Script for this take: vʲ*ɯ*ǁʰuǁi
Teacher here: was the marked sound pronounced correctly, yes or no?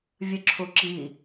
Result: yes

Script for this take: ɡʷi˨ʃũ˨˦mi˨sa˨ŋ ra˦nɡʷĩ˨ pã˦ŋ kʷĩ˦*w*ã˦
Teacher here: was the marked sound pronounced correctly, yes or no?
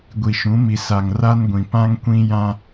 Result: no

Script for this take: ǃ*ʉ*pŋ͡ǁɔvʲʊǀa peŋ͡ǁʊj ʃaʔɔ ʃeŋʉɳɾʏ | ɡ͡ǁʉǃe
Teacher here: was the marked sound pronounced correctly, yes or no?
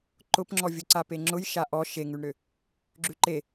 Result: no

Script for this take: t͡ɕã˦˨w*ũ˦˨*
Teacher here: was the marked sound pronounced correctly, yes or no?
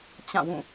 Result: yes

